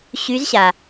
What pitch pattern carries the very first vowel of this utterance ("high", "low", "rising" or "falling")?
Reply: rising